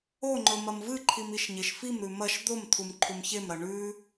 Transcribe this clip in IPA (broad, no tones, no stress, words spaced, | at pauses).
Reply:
oŋ͡ǃɵ mɐmvɨǃʰim iʃɲeʃfimɾʉ mɐʃ d̪omt̪ʰum ǃʰumçemɾɐ ɳʉ